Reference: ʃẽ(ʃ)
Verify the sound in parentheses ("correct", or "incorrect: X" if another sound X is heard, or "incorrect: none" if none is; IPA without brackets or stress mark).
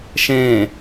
incorrect: none